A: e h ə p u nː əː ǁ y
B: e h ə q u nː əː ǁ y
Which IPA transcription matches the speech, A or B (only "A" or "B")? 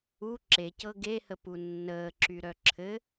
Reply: A